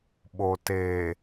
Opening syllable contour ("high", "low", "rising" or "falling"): low